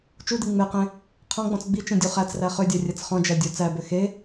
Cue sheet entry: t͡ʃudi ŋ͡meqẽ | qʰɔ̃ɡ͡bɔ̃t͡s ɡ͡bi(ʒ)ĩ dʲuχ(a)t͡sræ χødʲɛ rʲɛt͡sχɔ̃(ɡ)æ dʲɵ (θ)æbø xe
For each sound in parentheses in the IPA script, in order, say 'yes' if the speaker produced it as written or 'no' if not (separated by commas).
no, no, no, no